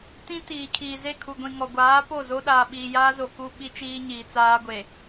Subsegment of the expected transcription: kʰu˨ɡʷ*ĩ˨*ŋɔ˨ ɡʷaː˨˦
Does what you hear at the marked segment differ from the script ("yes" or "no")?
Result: no